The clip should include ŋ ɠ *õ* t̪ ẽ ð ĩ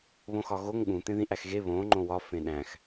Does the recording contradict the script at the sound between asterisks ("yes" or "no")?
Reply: yes